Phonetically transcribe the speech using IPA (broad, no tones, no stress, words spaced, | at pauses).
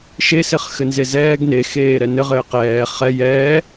ʃe sɪχxɘnzezɛːɡ nexeː ɾɛnɘ ʁɘːqɛː χɛ jɛː